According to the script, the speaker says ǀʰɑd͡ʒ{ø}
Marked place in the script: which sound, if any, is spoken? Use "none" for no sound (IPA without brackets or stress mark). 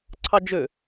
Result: ø